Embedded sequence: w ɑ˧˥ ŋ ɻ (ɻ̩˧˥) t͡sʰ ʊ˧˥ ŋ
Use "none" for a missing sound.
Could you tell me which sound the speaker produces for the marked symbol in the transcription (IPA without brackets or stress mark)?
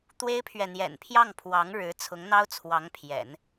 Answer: ɻ̩˧˥